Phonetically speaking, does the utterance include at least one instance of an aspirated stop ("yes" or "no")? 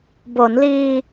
no